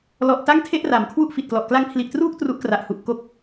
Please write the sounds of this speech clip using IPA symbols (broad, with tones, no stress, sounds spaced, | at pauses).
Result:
l ɔ˨˩ ʔ t a˥˩ ŋ tʰ e˥˩ ʔ r a˩˦ m kʰ w u˥˩ ʔ f i˨˩ t̚ k l ɔ˨˩ ʔ k l a˦˥ ŋ pʰ l i˨˩ ʔ t r uː˥˩ k̚ t r u˦˥ ʔ k r a˨˩ ʔ h u˨˩ ʔ k o˥˩ k̚